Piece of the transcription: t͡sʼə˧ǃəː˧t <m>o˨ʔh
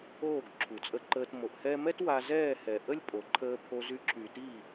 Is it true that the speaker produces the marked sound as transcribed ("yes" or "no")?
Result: yes